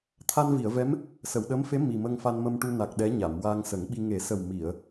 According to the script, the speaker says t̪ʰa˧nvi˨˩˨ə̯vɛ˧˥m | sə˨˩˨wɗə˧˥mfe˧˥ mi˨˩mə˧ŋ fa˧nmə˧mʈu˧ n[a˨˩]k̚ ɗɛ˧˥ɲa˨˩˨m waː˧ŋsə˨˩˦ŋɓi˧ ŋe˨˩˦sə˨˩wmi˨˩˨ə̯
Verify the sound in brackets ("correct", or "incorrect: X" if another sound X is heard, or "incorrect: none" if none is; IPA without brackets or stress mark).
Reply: correct